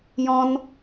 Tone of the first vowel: high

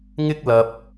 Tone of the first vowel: high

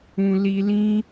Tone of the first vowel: low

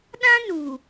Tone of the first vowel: high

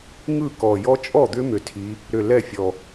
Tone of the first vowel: falling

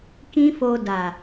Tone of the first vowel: high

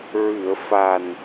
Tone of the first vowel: low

